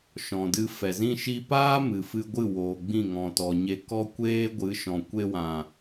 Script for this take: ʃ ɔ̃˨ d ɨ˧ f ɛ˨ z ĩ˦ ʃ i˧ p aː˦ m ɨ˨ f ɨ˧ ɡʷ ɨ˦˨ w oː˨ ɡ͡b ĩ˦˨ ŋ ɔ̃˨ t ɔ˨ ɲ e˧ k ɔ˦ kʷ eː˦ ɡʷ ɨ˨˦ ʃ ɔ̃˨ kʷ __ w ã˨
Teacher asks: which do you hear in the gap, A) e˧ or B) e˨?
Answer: A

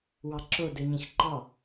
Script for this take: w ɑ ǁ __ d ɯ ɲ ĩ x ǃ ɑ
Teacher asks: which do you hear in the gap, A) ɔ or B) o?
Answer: B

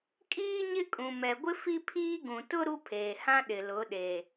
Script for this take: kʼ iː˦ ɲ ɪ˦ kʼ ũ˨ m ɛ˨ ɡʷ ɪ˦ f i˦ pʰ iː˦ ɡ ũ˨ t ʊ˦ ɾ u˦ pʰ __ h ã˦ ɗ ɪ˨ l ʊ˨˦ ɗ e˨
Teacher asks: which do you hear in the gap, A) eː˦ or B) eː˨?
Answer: B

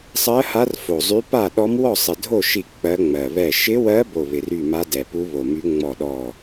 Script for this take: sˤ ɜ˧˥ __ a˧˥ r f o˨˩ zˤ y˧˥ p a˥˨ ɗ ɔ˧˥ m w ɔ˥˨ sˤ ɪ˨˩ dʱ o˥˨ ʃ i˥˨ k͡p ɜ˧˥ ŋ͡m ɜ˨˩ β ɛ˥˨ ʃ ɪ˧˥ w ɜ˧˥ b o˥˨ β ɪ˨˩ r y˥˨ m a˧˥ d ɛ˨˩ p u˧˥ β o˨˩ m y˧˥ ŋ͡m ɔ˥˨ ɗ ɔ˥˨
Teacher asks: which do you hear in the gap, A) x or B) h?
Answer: B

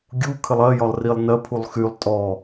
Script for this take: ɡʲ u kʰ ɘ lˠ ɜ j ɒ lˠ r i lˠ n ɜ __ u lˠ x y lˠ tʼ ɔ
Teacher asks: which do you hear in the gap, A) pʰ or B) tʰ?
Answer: A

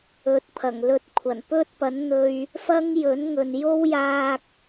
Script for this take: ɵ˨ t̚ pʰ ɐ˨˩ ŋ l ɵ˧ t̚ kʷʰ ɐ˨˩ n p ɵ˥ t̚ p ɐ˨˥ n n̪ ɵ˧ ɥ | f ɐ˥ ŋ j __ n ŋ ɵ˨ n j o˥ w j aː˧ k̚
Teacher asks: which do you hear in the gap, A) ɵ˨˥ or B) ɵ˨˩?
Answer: A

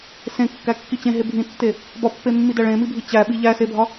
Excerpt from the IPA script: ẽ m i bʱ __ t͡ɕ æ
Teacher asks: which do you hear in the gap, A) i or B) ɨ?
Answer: A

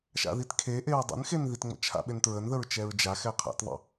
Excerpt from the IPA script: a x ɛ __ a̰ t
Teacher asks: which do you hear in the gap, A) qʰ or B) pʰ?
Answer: A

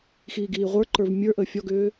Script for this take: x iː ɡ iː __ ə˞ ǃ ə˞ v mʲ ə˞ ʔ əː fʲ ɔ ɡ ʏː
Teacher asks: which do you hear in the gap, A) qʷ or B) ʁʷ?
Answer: B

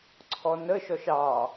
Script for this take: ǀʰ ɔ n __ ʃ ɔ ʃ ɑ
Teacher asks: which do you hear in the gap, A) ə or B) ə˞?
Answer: A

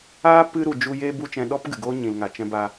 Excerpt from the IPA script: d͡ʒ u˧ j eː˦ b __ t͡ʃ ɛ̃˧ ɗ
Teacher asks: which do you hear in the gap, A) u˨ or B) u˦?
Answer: B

